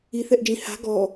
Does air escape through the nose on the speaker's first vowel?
no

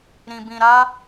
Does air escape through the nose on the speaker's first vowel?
yes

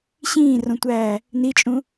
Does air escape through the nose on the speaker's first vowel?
yes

